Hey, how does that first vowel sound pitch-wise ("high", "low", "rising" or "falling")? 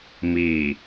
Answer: low